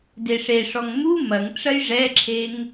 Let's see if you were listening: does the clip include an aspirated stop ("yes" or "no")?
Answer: yes